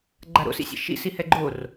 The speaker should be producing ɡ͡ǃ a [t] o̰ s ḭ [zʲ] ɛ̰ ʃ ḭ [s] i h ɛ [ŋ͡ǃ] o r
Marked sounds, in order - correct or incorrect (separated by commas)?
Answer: incorrect, incorrect, correct, incorrect